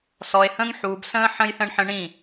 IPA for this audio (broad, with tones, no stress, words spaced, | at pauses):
sɔ˨e̯hə̃ː˦ŋ ħuː˨bsə̃ː˦ ħə̃˦jθə̃˦ɳħə̃˦ ɳĩ˦˨